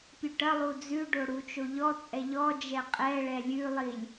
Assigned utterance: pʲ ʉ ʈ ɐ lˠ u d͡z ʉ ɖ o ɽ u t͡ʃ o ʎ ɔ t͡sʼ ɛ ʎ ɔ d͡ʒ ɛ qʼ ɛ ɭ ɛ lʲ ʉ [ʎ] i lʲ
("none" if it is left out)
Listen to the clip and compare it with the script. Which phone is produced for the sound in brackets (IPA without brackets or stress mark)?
lˠ